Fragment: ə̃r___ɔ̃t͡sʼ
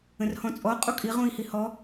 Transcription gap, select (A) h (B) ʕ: A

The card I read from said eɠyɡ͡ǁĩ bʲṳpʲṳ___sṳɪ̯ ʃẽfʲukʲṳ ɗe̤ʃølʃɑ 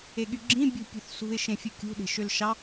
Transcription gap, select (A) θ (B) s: A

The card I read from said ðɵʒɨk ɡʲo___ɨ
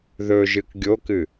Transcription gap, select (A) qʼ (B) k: B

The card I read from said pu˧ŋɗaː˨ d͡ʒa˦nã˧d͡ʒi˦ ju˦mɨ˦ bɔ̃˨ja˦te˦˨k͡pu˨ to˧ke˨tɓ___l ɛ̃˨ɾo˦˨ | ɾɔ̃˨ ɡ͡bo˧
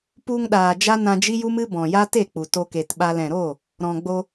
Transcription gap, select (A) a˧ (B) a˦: A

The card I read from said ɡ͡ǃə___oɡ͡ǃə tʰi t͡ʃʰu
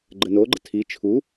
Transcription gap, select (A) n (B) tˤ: A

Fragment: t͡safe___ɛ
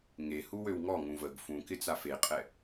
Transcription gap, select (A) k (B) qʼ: B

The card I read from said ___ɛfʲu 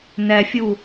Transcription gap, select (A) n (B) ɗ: A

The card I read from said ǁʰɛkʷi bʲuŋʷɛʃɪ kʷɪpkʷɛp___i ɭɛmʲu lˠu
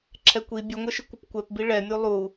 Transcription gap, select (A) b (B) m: A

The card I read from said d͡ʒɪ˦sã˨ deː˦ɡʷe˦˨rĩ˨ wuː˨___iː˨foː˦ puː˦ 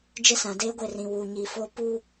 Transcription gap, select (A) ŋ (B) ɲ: B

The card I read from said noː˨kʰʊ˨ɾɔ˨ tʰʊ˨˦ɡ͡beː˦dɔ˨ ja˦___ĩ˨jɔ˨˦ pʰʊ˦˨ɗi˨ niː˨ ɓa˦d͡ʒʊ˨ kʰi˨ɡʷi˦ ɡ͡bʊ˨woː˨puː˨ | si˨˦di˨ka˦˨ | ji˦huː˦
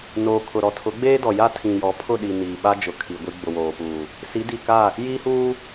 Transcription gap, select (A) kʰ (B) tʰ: B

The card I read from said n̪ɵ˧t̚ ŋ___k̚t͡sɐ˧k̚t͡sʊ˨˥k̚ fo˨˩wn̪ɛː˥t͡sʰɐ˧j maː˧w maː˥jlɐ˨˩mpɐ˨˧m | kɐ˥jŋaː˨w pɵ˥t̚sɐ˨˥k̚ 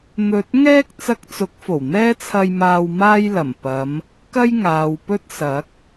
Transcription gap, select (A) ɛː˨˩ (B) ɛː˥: B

